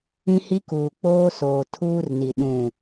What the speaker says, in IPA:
ĩ˦ h i˦ k uː˨ k͡p oː˦ s oː˨ tʰ uː˦ r n i˨ ɗ ũ˨

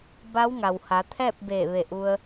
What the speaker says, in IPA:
b a˧˥ w ŋ a˩ w h a˩˧ t̪ʰ ɛː˥˨ p̚ b eː˧˩ ʋ e˧˩ ʔ u˧ ə̯

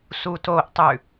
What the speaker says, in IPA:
s u t o ʔ tˤ ʉ

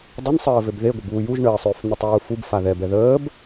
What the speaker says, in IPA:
dˤ ə n sˤ əː v ø b ð e ɡʷ ə b uː j u ʒ ɳ əː sˤ øː f n̪ ø tˤ uː f u b f a ð ɛ b ɛ ð əː b

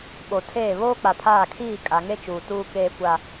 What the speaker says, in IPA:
ɓ o˨ tʰ eː˦˨ β oː˦ k͡p a˨ pʰ aː˦˨ kʰ iː˦˨ kʼ a˨ ŋ e˦ t͡ʃ uː˨ t uː˦ k eː˦ kʷ a˦

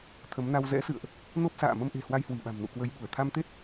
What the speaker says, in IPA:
t̪ʰ ə˨˦ m n a˧ w z ɛ̰˧˥ s ɨ̰˧˨ ə̯ ʔ | n o˦˥ p̚ s a̰ː˧˨ m ə˧ m ʔ e̤˨˩ h w a˧ j h w i˧˩ ɓ a̤˨˩ m n ṵ˧˨ k w ə˨˦ j ɓ u˧˩ ə̯ t̪ʰ a˧ m t̪ e˦˥ t̚

